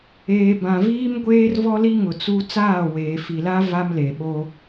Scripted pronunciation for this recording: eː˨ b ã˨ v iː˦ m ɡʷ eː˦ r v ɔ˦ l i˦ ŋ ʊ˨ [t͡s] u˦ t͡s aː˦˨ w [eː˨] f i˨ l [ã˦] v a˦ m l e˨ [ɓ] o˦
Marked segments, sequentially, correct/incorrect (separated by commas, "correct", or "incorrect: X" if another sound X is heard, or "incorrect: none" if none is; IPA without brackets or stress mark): correct, correct, incorrect: a˦, correct